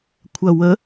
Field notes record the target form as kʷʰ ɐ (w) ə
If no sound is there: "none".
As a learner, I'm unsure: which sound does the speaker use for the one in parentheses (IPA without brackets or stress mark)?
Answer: w